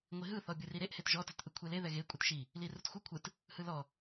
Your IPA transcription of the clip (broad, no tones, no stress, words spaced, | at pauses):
ŋʷiɦɯ θɔbʲɯriɾeʔ hetʒɔ tɛtʔɯkʷʰele ðɛɣe kʷʼɯtʃi | lirutxʷɯ kʷʰɯt | hɯlɔ